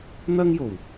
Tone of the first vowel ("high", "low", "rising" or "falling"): high